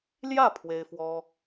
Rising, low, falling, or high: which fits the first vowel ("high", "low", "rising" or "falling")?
falling